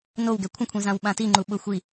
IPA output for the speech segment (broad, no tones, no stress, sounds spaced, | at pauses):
n o w ɡ ɛ kʷʰ ə̃ kʷʰ ĩ z ã w ɓ ã t i ŋ͡ǃ u ɓ ʊ xʷ i